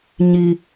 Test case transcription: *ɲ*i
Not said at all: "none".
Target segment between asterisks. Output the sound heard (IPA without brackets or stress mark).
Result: ɲ